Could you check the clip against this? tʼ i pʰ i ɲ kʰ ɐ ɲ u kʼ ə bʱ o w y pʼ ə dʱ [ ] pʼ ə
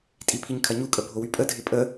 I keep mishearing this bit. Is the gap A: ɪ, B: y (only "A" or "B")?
A